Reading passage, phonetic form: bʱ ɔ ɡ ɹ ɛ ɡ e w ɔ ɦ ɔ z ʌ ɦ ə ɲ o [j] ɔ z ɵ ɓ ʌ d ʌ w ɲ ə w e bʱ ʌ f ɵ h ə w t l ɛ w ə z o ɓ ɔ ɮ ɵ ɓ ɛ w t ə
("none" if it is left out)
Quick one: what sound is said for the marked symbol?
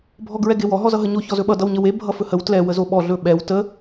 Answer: ç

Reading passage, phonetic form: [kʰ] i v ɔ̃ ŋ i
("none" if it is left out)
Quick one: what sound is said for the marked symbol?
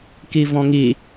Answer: k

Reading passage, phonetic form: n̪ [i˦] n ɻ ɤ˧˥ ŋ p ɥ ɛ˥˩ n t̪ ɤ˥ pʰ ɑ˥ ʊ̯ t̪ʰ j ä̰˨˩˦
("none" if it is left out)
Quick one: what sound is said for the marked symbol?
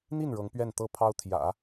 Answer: i˥˩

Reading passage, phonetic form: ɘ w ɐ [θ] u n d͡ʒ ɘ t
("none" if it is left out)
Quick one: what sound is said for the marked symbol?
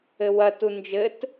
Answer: t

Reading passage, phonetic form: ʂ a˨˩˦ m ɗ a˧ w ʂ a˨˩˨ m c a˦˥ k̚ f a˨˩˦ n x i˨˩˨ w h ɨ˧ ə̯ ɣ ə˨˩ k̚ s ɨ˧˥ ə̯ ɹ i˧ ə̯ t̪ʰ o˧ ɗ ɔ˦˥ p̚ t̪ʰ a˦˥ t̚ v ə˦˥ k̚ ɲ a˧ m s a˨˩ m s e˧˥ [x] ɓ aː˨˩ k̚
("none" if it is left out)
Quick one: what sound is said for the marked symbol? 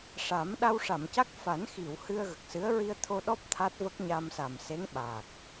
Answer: ŋ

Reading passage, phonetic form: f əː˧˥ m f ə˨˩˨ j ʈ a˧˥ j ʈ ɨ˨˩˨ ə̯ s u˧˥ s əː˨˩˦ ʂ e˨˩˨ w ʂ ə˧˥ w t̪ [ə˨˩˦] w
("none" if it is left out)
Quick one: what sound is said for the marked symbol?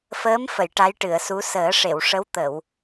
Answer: ə˨˩˨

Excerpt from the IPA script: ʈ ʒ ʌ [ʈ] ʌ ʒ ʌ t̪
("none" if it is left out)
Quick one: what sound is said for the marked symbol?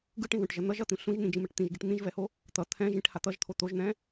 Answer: n̪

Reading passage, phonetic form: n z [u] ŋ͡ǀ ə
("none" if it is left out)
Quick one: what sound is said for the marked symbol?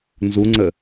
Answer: u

